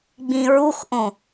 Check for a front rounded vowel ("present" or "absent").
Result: absent